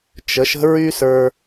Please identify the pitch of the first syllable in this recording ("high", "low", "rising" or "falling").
rising